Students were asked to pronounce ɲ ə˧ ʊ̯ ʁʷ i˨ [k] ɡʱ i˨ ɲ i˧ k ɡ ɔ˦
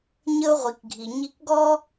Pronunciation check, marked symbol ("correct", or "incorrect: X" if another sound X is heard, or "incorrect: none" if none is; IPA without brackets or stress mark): correct